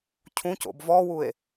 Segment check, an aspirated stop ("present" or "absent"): present